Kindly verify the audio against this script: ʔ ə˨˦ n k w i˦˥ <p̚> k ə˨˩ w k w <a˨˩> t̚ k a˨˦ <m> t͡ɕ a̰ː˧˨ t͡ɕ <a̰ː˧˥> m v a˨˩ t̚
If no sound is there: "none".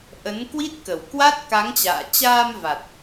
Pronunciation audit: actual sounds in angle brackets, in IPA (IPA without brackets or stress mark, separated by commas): t̚, a˦˥, ŋ, aː˧